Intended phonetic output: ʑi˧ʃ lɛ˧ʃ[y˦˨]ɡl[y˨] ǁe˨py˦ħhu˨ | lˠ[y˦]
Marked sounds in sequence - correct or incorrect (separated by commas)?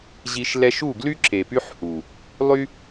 incorrect, incorrect, correct